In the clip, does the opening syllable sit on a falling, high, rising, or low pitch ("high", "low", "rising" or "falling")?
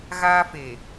high